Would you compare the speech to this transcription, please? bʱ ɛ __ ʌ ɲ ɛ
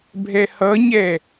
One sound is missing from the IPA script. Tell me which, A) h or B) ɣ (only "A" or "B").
A